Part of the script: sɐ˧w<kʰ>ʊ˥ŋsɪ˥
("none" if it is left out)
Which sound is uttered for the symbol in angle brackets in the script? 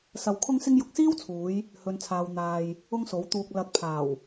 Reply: kʰ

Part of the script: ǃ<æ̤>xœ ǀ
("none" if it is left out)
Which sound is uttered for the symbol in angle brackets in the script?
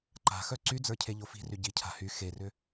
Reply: a̤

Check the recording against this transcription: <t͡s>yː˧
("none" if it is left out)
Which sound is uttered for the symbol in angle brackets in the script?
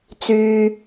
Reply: t͡s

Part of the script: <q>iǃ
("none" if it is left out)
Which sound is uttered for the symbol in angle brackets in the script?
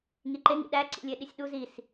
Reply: ŋ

